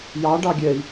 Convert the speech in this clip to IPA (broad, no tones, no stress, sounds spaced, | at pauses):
j ɑ ɖ ɑ ɡʲ ɛ i̯